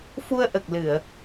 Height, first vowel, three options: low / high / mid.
high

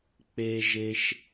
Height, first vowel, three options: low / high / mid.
mid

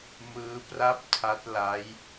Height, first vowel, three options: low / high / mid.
high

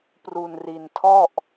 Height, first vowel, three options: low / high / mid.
high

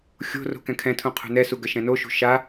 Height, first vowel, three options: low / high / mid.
mid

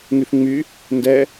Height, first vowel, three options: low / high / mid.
high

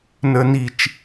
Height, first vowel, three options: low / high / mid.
mid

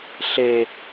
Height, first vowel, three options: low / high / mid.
mid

